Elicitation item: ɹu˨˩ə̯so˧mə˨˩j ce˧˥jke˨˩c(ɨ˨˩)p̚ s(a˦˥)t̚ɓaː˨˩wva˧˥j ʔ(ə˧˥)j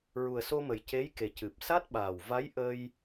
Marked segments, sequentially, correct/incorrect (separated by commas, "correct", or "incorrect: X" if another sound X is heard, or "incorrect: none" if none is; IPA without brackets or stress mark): correct, correct, incorrect: ə˧